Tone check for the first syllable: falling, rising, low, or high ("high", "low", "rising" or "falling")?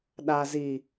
low